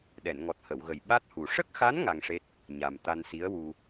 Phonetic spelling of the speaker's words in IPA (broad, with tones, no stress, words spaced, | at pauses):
ɗɛ˨˩˨nŋɔ˨˩t̚ hə˨˩˨wɣə˨˩j ɓa˦˥t̚hu˨˩ ʂə˦˥k̚xa˧˥n ŋa˧ŋʂe˦˥t̚ | ɲa˨˩m t̪a˧nsi˧˥ə̯wu˧